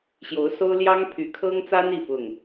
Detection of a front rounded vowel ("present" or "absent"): present